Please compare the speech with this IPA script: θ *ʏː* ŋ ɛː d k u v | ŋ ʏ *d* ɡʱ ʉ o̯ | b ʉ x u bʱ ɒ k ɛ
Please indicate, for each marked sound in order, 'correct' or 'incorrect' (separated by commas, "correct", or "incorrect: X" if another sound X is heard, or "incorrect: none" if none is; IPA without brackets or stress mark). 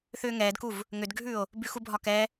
correct, correct